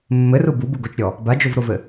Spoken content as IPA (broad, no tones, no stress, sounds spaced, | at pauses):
mː ɘ r u b u b u ɡ o t͡ʃ ɾʲ ɔ | b a d͡ʒ o v ɾ o v ɘ